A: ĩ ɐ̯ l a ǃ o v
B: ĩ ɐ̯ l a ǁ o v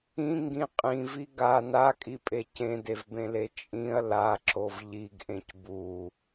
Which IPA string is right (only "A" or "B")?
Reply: B